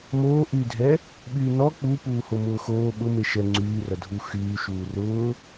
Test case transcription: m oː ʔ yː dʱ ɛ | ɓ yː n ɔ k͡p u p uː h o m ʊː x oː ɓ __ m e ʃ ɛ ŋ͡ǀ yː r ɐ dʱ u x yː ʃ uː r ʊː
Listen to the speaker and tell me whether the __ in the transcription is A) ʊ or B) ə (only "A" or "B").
A